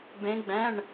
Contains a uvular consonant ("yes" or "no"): no